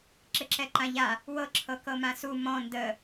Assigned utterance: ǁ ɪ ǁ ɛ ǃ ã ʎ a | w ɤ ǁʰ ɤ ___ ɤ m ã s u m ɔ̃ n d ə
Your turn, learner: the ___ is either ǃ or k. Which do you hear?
k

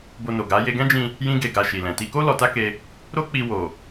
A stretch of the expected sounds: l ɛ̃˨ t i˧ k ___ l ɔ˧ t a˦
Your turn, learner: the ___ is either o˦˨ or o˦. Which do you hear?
o˦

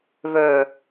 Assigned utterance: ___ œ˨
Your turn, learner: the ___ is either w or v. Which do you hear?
v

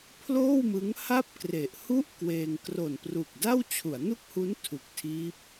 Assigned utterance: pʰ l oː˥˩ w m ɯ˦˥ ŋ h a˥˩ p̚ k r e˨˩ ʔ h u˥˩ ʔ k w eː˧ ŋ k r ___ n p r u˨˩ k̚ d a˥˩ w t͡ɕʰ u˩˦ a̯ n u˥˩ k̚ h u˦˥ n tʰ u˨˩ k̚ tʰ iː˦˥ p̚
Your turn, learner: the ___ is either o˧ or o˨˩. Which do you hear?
o˨˩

